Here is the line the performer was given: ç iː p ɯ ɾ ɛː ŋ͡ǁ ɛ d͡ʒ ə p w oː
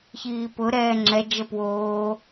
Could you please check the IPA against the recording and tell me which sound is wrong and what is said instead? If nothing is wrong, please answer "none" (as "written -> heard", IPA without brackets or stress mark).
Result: ɯ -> ʊ